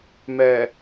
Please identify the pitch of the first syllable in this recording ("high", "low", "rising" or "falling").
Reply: low